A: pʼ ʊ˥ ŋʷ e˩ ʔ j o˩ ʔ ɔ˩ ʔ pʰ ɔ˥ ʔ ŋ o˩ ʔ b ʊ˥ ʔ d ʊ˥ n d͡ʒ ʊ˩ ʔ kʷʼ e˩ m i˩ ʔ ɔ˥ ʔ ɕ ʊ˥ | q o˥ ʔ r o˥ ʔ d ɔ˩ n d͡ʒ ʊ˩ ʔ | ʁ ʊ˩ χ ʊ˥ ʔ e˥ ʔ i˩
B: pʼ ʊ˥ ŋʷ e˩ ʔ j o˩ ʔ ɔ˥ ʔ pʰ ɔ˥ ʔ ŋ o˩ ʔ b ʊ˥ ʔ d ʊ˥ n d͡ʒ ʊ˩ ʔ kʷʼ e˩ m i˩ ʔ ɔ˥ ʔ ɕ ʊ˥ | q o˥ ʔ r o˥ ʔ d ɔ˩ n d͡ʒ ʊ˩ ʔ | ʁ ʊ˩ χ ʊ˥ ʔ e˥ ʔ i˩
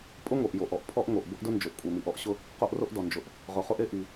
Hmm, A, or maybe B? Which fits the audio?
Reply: A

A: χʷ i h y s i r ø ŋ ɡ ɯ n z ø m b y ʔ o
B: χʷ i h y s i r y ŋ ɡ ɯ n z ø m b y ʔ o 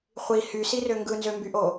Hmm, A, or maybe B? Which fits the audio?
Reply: A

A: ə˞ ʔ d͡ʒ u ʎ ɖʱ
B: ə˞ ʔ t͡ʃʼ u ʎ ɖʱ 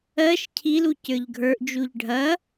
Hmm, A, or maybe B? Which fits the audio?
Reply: A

